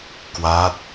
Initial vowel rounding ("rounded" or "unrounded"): unrounded